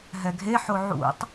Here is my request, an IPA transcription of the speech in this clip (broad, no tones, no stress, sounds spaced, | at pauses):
ɦ ɛ ɡʱ e ħ o ʕ ṵ tˤ